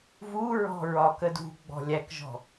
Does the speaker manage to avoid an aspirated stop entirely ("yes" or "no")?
yes